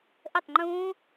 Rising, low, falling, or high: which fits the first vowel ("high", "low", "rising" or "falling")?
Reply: falling